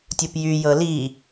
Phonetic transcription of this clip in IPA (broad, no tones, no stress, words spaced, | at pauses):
tʲupjy jɤli